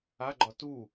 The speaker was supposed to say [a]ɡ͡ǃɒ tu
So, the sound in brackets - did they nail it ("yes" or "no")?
yes